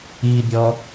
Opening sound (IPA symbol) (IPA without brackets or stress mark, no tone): i